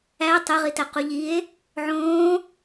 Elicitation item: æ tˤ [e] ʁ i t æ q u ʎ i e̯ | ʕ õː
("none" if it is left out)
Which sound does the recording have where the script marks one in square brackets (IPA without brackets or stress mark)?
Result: e